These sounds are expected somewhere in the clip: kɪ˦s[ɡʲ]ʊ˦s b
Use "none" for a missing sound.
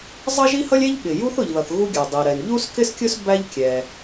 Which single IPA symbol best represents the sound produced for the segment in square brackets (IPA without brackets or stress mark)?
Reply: kʲ